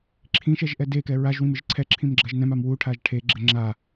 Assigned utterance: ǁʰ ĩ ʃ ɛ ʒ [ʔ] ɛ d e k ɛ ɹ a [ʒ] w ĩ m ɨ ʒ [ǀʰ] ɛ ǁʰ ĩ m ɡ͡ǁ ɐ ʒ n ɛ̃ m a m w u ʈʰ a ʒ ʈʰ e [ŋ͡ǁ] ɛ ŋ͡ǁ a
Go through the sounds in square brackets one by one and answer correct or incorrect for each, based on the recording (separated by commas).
correct, correct, correct, incorrect